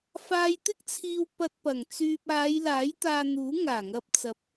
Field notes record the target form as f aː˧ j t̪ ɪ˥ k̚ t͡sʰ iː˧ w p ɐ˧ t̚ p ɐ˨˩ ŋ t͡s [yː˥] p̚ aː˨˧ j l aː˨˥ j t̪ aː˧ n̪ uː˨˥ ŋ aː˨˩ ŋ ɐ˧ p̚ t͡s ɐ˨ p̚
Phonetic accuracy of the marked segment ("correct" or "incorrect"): incorrect